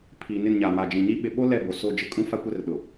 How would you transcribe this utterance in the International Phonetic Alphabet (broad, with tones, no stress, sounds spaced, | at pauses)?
pʰ iː˨ n ɪ˦˨ n ɲ a˨ m a˨ d͡ʒ ĩ˨ ɲ i˦ ɓ ɪ˨ ɓ o˦ l ɛ˦˨ b o˨ s o˦˨ d͡ʒ ɪ˦ kʼ ũ˦ f a˦ kʷ ɛ˦ r ɗ ʊ˨